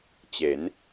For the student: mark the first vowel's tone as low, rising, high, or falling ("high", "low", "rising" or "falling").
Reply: rising